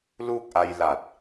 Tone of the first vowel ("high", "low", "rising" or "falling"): falling